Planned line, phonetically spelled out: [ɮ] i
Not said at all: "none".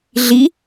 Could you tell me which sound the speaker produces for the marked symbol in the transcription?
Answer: ɮ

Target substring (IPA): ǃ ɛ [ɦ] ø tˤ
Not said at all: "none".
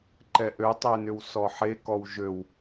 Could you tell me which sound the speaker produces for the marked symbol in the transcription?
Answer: ʔ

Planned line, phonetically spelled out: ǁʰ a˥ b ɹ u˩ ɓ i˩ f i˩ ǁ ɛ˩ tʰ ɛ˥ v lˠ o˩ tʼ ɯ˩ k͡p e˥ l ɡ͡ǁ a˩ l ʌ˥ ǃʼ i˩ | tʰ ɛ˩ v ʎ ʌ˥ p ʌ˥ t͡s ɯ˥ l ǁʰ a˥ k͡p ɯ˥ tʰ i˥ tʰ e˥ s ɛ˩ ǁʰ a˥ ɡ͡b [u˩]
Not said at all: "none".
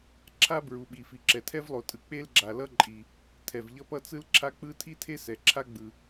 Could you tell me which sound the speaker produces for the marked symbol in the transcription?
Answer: ɯ˩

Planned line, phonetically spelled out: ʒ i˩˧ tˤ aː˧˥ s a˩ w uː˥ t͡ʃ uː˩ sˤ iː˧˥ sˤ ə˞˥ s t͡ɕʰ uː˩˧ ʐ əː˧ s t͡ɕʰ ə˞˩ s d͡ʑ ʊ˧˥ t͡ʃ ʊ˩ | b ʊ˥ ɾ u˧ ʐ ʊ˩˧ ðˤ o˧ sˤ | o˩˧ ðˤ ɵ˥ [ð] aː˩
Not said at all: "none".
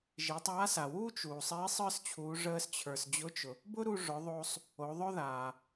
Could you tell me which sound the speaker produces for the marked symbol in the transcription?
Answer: ð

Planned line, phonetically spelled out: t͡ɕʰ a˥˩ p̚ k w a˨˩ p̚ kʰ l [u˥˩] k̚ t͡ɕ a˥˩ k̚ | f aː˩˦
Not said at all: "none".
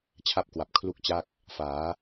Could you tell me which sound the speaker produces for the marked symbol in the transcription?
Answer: u˥˩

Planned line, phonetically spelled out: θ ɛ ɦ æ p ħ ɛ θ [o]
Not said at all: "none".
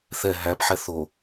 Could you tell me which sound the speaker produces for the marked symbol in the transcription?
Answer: o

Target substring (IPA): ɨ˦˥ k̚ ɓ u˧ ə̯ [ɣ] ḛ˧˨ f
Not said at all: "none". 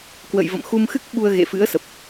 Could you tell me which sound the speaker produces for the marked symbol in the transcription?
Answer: ɣ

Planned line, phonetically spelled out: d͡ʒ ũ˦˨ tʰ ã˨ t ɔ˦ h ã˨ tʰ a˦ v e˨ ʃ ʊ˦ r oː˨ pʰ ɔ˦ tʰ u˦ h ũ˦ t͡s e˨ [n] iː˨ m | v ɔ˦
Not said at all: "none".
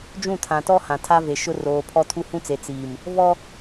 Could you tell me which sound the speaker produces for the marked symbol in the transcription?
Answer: t͡s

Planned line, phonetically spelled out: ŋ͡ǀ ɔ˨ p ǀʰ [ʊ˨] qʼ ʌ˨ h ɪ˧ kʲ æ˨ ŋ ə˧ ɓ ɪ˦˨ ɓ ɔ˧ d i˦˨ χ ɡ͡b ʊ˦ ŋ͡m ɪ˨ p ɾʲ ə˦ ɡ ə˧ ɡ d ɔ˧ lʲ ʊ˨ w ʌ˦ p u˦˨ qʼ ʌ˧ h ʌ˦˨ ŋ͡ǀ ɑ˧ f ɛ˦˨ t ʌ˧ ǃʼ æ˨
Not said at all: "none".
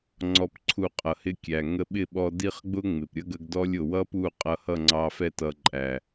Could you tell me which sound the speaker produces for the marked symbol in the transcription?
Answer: u˨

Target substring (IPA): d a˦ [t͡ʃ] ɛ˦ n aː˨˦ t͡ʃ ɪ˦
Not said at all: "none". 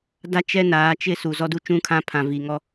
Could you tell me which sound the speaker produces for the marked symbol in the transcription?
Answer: t͡ʃ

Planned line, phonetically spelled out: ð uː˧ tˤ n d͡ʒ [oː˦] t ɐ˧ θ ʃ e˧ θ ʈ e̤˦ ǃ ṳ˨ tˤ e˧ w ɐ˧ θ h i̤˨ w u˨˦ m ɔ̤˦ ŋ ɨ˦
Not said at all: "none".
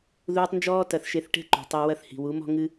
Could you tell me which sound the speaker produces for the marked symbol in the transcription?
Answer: ɔː˦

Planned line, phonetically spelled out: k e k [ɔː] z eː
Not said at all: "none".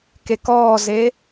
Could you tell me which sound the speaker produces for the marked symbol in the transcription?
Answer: ɔː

